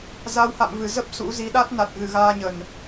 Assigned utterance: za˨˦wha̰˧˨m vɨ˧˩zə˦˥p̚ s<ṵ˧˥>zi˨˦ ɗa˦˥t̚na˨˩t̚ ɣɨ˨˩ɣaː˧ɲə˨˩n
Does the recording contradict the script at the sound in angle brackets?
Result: no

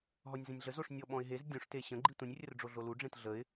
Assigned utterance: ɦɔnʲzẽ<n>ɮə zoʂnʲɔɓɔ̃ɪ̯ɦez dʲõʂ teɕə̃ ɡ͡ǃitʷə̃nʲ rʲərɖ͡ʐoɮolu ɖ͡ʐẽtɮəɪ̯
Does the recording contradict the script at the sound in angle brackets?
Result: yes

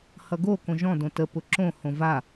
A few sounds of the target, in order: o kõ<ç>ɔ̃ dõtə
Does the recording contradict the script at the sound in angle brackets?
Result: yes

